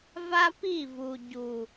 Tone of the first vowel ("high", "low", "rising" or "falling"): high